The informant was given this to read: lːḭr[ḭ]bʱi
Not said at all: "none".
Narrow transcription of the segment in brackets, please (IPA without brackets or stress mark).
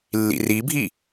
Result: i